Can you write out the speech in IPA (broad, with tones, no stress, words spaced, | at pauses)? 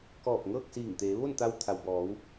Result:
kɔː˧˩p̚ŋɤː˥˨k̚siː˧˩ŋt̪eː˩˧ ʋo˥˨n t̪a˧wt̪ʰa˩wbɔː˩˧w